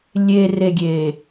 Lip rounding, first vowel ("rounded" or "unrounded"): unrounded